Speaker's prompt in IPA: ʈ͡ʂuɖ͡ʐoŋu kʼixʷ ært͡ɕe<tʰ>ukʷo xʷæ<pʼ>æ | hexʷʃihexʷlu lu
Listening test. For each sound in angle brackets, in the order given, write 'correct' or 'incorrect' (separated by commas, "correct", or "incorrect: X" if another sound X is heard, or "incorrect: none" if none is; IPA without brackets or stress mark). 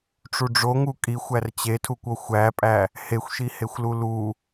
correct, correct